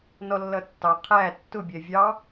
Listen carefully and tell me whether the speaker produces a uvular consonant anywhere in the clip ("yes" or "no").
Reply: yes